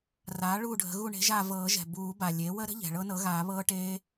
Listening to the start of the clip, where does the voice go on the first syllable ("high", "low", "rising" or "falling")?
rising